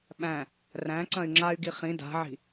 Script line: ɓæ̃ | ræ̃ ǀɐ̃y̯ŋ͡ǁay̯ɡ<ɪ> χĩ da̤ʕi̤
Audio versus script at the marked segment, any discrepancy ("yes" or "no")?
yes